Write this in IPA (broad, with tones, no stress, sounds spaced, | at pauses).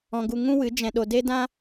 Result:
ɔ̃˧ ɡ u˧ ŋ ũ˦ w ɨ˨˦ d͡ʒ ɛ̃˧ ɗ o˧ d e˦ d ã˦